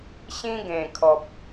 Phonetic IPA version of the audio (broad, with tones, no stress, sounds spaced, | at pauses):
ɕ ĩ˧ ɡ ẽ˨˩ kʰ ɔ˨ p̚